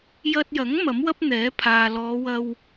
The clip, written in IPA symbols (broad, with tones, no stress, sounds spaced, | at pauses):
j ɐ˧ t̚ j ɐ˨˥ ŋ m ɐ˨˥ m w ɐ˥ p̚ n̪ ɛː˨˥ pʰ aː˨ l ɔː˨˧ w ɐ˧ w